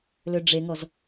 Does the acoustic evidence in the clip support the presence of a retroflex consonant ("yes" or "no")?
yes